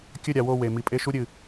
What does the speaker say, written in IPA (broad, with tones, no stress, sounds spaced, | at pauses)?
kʲ ɵ˦˨ ɾʲ a˨ w o˦˨ w e˨ m i˨ pʼ e˦ ʃ u˦ ɾʲ ɨ˨